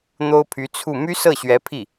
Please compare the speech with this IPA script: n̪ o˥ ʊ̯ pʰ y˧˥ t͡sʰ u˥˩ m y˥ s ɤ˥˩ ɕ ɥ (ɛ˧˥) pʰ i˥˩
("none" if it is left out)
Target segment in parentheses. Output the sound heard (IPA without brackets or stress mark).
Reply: ɛ˧˥